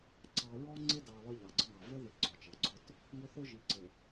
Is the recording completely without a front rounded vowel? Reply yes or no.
yes